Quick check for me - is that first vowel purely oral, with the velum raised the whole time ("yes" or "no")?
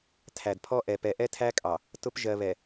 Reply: yes